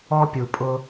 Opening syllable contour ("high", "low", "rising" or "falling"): high